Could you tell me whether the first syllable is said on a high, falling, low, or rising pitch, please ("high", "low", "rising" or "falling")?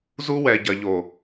high